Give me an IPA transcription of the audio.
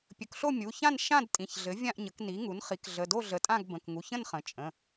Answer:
pʲ ɵ˩˥ k ɬ o˥˨ mʲ u˩˧˩ ç ã˥˨ n ʃ ã˥˨ d tʼ ĩ˩˧˩ ç ɮ ɘ˩˥ vʲ ã˥˨ ʔ ɲ ə˩˥ k n i˩˥ ŋ u˩˥ n χ i˩˥ k ɮ ə˩˧˩ d o˥˨ ɮ ə˩˥ tʼ ã˥˨ ɡ b ə̃˩˧˩ k ŋ u˩˧˩ ç ə̃˥˨ n χ ə̃˩˥ t͡ʃʼ ə̃˩˧˩

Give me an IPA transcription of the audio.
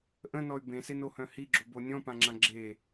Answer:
ʔ ə̃ n ɔ y̯ b ẽ s e n o h œ̃ h i ɡ͡ǁ o b o nʲ ɔ̃ p ã ŋ͡ǁ ã ɡ͡ǁ e

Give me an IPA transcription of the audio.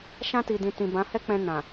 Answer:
ʃ ã˧ t i˨ d ĩ˨ t ĩ˨ b ã˨˦ h ɛ˦ k͡p ɛ̃˧ n ã˨

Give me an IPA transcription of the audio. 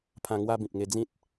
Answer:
pʰ ã˧ ŋ w a˦ b ĩ˨ p̚ ŋ e˧ d͡z ĩ˦ t̚

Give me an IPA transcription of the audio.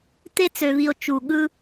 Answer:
t̪ e˧ t͡s ø˨ v i˨ o̯ t͡ʃ u˨ ɠ ɯ˧

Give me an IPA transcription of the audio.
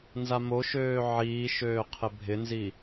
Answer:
n z a m o ʃ øː ʕ iː ʃ øː qʰ ɪ bʱ ɪ n z i

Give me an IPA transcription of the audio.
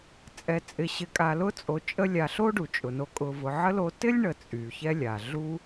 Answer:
t͡sʼ ɛ˨ t͡sʼ ɪ˨ ɕ ɪ˨ kʼ a˨ l ʊ˦ t͡sʼ o˨ t͡ʃʼ ə˦ lʲ a˨ ɬ o˥ ɖ u˩ t͡ʃʼ ʊ˩ n o˨ kʼ ʊ˨ v ʊ˨ ʕ ə˥ l o˦ t ɪ˥ lʲ ɳ ə˨ t͡sʼ y˩ ç ɛ˦ lʲ a˩ ɮ u˦

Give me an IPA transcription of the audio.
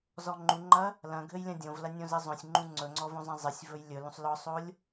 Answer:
z ɔ ŋ͡ǃ u ŋ͡ǃ ɐ | l ɐ̃ ɡʱ ɘ j lʲ ɐ̃ dʲ õ v l ɐ nʲ õ z ɘ zˤ õ sʲ ŋ͡ǃ ũ ŋ͡ǀ ɵ ŋ͡ǀ ɔ v õ zˤ ɐ̃ zˤ ɪ sʲ v ɵ j lʲ ɵ l ũ sˤ l ɔ sˤ o lʲ

